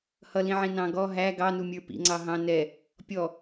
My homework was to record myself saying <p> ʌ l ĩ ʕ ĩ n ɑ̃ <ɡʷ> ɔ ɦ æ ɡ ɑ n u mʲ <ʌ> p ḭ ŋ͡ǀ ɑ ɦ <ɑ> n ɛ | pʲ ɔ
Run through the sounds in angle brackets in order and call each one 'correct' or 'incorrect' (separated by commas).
incorrect, incorrect, incorrect, incorrect